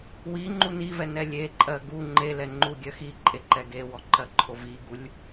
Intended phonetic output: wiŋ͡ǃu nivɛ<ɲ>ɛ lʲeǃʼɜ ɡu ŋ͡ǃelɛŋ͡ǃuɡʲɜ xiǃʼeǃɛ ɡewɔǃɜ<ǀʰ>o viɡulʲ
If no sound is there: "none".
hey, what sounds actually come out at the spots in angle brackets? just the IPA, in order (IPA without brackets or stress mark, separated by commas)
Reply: n, ǃʰ